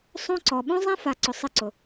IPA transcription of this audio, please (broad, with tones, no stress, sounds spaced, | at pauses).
sˤ õ˦ ǀ ɔ˨ ɓ õ˦ zˤ ɛ̃˦ f a˨ ǀ ʊ˨ sˤ ɪ˦ ǀ ʊ˨